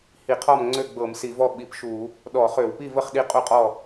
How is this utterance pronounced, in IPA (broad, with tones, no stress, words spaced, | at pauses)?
hi˧˩˧qʰɔ˥˨mŋ͡ǀø˥˨ɡ͡bɤ˧˩˧m si˧˩˧vɔ˥˨ ɓi˧˩˧pʃu˧˩˧ | ɗɔ˧˩˧χø˧˩˧wpi˥˨və˥˨χ ɗi˥˨qʼu˥˨qʼɔ˥˨